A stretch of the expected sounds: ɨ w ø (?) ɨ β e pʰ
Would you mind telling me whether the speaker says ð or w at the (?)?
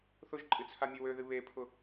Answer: ð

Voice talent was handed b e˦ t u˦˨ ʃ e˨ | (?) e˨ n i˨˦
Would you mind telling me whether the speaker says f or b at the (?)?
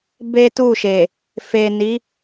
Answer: f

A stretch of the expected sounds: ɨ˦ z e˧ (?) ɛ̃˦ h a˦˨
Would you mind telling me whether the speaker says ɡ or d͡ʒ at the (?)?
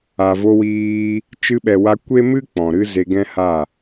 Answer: ɡ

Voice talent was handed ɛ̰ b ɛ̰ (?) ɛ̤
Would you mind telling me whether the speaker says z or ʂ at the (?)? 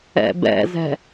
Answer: z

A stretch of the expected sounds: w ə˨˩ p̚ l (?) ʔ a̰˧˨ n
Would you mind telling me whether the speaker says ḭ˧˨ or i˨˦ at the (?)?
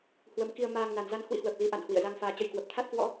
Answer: i˨˦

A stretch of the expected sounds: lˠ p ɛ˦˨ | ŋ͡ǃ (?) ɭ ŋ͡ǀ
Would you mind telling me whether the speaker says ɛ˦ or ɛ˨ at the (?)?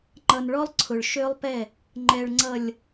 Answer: ɛ˨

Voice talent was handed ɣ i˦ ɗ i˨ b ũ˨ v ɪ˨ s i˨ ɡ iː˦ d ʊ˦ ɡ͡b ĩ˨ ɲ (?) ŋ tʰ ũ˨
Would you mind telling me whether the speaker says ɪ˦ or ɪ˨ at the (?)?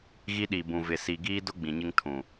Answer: ɪ˦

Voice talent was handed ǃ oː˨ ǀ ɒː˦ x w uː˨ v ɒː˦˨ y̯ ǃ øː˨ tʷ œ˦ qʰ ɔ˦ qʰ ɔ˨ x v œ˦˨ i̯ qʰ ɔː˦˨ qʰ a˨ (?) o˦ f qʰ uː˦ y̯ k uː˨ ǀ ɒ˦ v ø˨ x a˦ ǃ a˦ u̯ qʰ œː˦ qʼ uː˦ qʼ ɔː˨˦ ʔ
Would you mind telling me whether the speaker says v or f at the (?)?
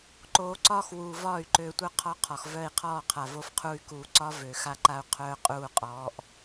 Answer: v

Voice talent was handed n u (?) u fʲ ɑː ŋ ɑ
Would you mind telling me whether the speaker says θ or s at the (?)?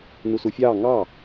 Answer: s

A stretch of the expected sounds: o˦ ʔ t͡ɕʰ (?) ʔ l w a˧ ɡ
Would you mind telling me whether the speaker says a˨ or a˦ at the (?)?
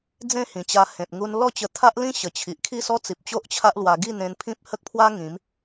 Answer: a˦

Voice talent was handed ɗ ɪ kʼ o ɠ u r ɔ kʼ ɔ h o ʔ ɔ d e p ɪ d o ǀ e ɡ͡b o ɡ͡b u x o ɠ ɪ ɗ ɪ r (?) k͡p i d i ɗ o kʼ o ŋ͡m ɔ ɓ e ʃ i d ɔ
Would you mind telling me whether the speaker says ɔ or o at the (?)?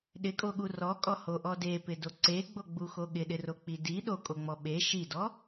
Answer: o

